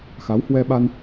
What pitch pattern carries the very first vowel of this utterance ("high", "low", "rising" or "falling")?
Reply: rising